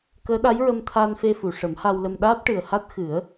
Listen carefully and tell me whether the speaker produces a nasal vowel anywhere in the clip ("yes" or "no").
no